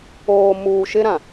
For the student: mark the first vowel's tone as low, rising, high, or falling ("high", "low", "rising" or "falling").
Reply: low